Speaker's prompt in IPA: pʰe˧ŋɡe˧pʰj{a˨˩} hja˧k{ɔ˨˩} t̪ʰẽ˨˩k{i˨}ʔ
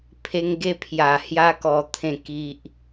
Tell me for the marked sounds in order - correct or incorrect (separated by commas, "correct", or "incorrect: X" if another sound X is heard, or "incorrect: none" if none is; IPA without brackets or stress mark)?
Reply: correct, correct, correct